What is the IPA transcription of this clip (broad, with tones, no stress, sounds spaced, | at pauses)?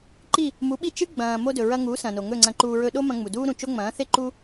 ǃ i˥˩ | m u˩˥ ɓ i˥˩ t͡ʃ ɨ˥ ɡ͡b ɐ̃ː˩ m o˧ d ɵ˩ ɹ ɐ˧ ŋ u˩˥ s ɐ̃˩ n o˩ ŋ ɵ˥˩ ŋ͡ǀ ɐ̃˧ ǃ uː˧ ɹ ɵ˧ ɗ o˥ m ɐ̃˧ ŋ͡m u˩ d uː˥ ɾ ũ˩ t͡ʃ o˥ ŋ͡m ɐ̃ː˩˥ θ e˥ ǃ u˥